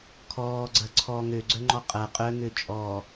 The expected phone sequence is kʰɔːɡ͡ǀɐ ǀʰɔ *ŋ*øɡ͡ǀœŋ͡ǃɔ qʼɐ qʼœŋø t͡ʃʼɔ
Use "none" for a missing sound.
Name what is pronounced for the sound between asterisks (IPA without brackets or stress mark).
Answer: ŋ